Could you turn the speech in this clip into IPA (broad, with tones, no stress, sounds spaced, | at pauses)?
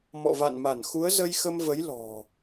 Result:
m ɔ̰˧˨ v a̰˧˨ n m a˧˩ n x u˨˦ ə̯ z ə˧ j x ə˧ m v ə˨˦ j l ɔ̤˨˩